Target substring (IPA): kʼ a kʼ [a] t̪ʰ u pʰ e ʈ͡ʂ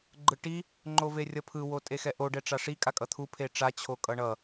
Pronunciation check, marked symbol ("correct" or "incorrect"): incorrect